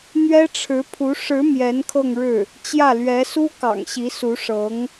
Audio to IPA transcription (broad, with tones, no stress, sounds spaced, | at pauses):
n̪ ɥ ɛ˥ ʈ͡ʂʰ ɻ̩˧˥ pʰ u˧˥ ʂ ɻ̩˧˥ m j ɛ˧˥ n kʰ ɤ˥˧ ŋ ɻ ɻ̩˥˩ | t͡ɕ j ä˥˩ l ɥ ɛ˧˥ s u˥ k ɑ̰˨˩ ŋ ɕ i˧˥ s u˧˥ ʂ ɤ˧˥ ŋ